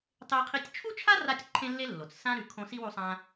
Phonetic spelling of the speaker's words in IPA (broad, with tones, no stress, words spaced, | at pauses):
tˤe˦qʰi˦tʲ t͡ʃʰu˥t͡ʃʰa˥ ra˦tʲǃʰẽ˦lːe˦lːo˩t͡s sã˦ ɾʉ˨kʰõ˦ si˥wu˦sˤã˦